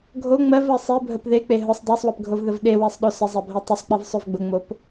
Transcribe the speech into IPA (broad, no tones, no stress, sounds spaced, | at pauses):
ɡʱ o ŋ͡m ɜ v ɜ sˤ e bʱ ə p ð e k͡p e ɦ ʊ sˤ dˤ ɜ sˤ w ə p ɡʱ o v ð ə v ɗ e w e sˤ ɗ o s ə zˤ ɜ bʱ ɜ tˤ ʊ sˤ k͡p e v sˤ o v ɡ͡b ʊ ŋ͡m o p